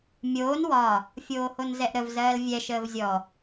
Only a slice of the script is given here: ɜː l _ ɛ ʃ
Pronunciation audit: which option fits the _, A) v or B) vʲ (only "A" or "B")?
B